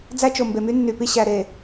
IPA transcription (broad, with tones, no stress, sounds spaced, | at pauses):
d͡z æ˦ t͡ʃ o˨ m b e˨ m y˦ nː y˨ p i˦ ɕ æ˨ ɾ e˨